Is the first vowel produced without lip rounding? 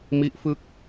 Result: yes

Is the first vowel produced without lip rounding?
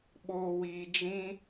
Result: no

